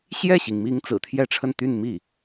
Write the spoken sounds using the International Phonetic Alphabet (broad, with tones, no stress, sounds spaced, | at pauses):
ɕ j ɛ˥˩ ɕ i˩ ŋ m i˧˥ ŋ t͡s ɹ̩˨˩ t̪ʰ j ɛ˥˧ ʈ͡ʂʰ ə˥˧ n t̪ y˥˧ n m i˥˩